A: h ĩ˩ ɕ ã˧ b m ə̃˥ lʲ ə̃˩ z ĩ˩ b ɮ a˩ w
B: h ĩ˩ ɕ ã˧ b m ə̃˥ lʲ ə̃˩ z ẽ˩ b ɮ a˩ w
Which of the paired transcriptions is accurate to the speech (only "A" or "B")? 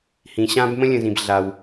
A